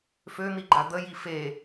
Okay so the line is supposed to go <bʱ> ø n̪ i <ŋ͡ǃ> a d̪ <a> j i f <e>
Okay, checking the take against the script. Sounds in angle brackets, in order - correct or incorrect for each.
incorrect: f, incorrect: ɡ͡ǃ, incorrect: ə, correct

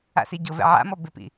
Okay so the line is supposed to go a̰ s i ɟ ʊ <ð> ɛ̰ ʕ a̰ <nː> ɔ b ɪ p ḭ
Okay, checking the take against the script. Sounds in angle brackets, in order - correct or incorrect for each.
incorrect: v, incorrect: m

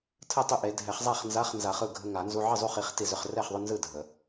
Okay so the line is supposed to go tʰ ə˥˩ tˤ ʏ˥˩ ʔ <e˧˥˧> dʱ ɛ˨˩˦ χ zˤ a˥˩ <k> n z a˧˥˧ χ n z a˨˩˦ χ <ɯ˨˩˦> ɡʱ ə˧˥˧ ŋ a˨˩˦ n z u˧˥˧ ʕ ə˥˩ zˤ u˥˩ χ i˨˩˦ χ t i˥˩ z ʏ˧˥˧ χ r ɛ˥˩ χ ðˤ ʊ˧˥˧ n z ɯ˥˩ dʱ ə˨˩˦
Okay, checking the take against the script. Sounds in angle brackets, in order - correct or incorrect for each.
incorrect: e˨˩˦, incorrect: χ, incorrect: ɯ˥˩

